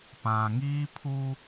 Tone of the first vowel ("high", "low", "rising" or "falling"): low